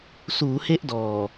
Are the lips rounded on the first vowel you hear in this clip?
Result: yes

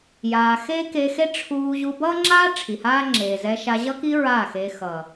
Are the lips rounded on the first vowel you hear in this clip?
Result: no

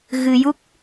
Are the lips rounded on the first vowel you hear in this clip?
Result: no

